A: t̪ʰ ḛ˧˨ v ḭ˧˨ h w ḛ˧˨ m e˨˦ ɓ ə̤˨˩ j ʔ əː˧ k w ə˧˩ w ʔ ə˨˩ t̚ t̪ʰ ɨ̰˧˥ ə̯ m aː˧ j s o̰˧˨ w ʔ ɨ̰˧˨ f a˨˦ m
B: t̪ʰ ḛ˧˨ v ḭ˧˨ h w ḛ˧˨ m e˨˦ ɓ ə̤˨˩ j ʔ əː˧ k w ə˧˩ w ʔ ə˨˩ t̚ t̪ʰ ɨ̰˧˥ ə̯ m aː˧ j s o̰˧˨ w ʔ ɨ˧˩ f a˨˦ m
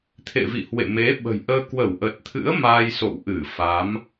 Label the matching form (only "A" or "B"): B